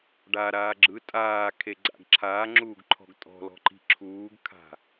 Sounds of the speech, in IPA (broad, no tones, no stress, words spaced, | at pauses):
ɖaɾaː ɡ͡ǁɯ tʼaːkʰeɡ͡ǀa̰ɡ ǁʰaːŋ͡ǁuːɡǃʰɔ̤ɡ tʼɔ̤lɔ̤ǃi̤ ǁʰuːɡkʰa̤